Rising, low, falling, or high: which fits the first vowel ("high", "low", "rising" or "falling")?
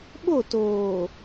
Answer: falling